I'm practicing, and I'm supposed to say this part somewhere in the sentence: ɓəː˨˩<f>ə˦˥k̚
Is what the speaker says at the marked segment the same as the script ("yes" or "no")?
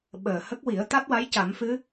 no